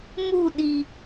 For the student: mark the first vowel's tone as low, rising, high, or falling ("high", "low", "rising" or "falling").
falling